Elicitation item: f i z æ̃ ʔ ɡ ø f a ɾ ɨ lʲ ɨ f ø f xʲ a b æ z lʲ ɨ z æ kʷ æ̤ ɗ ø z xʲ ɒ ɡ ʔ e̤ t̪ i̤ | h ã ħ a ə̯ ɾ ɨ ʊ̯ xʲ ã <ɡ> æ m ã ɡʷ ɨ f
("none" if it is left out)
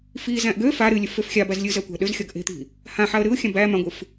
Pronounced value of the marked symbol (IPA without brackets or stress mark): b